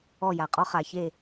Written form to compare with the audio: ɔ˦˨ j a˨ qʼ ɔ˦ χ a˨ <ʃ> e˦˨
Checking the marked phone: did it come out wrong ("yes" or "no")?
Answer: yes